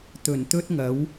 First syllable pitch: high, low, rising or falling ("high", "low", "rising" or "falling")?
low